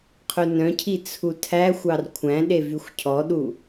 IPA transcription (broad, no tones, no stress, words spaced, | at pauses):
qʰɵnœ̃cʰi t͡sʰutʰæxʷɑr kʷʰæ̃ɗe vyxʷcʰɔɗu